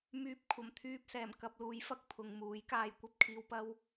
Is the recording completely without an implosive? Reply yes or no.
yes